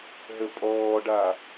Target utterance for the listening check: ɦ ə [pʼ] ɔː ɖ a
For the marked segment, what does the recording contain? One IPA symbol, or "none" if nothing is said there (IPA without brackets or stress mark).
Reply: pʼ